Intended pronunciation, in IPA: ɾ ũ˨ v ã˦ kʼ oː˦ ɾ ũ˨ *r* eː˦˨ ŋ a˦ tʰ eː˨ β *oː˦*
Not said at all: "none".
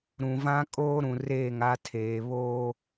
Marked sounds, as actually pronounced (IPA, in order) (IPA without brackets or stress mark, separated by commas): r, oː˦